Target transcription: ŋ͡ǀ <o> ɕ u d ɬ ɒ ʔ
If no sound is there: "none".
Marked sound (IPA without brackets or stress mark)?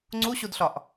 u